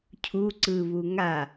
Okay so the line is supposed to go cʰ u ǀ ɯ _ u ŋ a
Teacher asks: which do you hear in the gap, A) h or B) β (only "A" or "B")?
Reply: B